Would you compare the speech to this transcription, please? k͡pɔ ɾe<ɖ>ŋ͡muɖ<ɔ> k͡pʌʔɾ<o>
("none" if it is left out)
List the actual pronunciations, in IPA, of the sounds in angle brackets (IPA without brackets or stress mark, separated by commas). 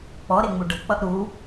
none, ʌ, u